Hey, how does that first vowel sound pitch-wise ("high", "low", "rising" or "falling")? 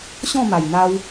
falling